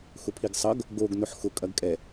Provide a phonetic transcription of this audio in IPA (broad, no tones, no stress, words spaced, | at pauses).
xʊpʰiɡsˤʌɡ | ɡoɡ nʊħxʊ kʼɐɡkʼɛ